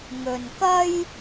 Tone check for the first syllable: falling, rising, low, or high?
low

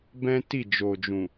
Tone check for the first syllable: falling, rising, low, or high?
high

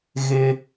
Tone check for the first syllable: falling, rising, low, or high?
high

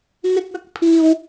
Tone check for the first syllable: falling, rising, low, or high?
high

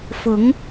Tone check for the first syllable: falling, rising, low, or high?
rising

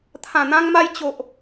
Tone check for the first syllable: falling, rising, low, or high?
low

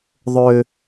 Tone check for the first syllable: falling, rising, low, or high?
high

